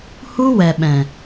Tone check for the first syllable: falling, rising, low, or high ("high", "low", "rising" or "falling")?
high